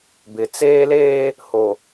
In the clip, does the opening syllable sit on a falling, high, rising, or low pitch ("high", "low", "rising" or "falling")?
rising